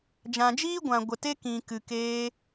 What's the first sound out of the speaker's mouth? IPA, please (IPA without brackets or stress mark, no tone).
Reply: d͡ʒ